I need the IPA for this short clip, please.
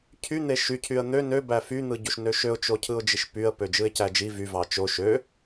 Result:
cʰ y n̪ e ʃ y cʰ y ə̯ n̪ ø n ø b æ f y n̪ ɯ ɟ u ʃ n ø ʃ ø ʊ̯ t͡ʃ o cʰ ɯ ʊ̯ d͡ʒ i ʃ p y ə̯ p ø d͡ʒ ɯ ɪ̯ c æ d͡ʒ i v y v ɑ t͡ʃ o ʃ ø

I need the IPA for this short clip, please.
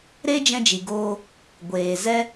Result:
ɾ e˦ d͡ʒ ɛ̃˧ d͡ʒ i˨ ɡ oː˧ | ɡʷ eː˨ z ɛ˦

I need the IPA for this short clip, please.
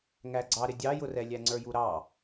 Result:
ŋ æ ɡ͡ǀ ɑ ɾ ɪ dʲ ɑ j ʊ r ɛ lʲ æ ŋ͡ǀ ə˞ j u ɾ ɑ

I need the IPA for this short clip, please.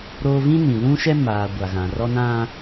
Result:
ɾ oː˦ v ĩ˦ n ĩ˨ l ũ˦ ʃ ɛ˦ m aː˨ ɡʷ a˨ ɣ ã˨ r ɔ˦ n ã˦

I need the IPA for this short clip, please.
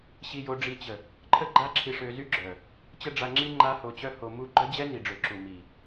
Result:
ɕ i˧ j o˧ ɖ͡ʐ i˧ t͡ɕ ə˨ | ǃʰ ə˦ ɡ͡ǃ a˦ ǁʰ i˧ ʂ ø˧ z y˦ ɡ͡ǁ œ˨ | t͡ɕ ə˦ ɖ͡ʐ a˧ ŋ͡ǁ i˦ ŋ͡ǃ a˦ h o˧ t͡ɕ œ˦ h o˧ m u˦ ɡ͡ǃ œ˦ d͡ʑ ɛ˦ n i˨ ɖ͡ʐ ø˨ ǁ u˨ m i˨

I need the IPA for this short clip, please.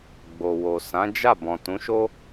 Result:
ɡ͡b o˨ w o˨ s ã˨˦ d͡ʒ a˦˨ b ɔ̃˨ t ũ˨˦ ʃ o˦

